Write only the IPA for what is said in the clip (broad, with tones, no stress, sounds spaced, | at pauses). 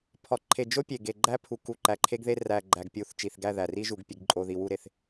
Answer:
pʰ ɒ˨ ǃʰ e˨ d͡ʒ o˦ pʲ e˨ ɡ e˨ ɡ͡ǃ æ˦ pʰ u˨ k u˨ ǃ æ˨ ǃʰ e˦ ɡ ð e˦ r æ˨ ɡ͡ǃ æ˨ ɡ pʲ u˨ θ t͡ʃ i˨ θ ɡ æ˦˨ ð æ˨ r i˦ ʒ u˨ ɡ pʲ e˨ ɡ ǃʼ o˨ ð i˨ w u˦˨ ɾ e˨ θ